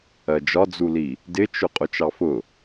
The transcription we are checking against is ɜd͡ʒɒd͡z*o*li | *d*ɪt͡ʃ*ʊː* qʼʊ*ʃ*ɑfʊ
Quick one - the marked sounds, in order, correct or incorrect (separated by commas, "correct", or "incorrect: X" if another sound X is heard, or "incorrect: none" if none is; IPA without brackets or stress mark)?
incorrect: u, correct, incorrect: ʊ, incorrect: t͡ʃ